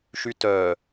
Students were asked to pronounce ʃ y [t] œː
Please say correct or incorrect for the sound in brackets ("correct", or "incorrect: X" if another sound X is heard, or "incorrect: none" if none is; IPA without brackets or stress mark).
correct